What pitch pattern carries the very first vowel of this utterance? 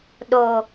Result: low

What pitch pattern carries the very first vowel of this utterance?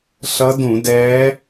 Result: rising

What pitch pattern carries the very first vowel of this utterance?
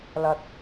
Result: low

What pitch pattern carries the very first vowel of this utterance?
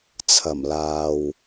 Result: low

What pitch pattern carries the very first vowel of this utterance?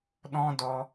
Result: high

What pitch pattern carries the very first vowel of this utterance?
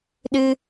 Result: high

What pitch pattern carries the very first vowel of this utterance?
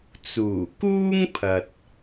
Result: low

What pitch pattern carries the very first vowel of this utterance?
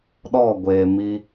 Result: falling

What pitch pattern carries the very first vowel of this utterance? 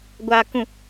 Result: low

